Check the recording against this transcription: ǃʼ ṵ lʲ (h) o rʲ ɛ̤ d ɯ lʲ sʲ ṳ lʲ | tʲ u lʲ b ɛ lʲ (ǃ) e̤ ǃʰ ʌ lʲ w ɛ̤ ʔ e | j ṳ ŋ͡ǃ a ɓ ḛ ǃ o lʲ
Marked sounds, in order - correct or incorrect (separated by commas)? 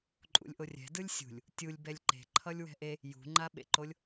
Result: incorrect, correct